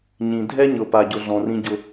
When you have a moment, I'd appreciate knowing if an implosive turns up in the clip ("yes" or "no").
no